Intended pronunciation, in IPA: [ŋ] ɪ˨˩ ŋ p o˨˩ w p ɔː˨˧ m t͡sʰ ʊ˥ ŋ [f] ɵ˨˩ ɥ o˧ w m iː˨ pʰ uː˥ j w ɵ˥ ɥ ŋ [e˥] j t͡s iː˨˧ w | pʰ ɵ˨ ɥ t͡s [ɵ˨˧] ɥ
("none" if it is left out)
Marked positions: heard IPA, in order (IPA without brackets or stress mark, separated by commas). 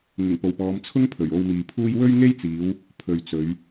ŋ, pʰ, e˥, ɵ˨˧